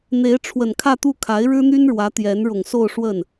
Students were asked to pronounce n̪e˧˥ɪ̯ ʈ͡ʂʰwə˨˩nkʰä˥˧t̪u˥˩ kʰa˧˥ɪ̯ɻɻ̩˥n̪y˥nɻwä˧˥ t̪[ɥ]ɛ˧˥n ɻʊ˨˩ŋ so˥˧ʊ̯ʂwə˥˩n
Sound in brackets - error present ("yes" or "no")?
yes